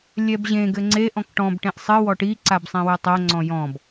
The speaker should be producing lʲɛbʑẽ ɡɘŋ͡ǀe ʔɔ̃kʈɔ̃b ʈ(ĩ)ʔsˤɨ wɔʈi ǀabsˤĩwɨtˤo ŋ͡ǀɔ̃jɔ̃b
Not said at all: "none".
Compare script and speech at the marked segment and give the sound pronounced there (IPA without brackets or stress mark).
ẽ